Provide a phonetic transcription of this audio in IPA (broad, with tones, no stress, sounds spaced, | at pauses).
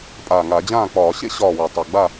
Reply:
pʼ aː˨˩ ŋ a˧˩˧ d͡ʑ ãː˥˩ k͡p ɒː˧˩˧ ɕ ḛ˥ ɕ ɒː˥˩ w ʏ˧˩˧ tˤ ʌ˨˩ ɡ͡b a˥˩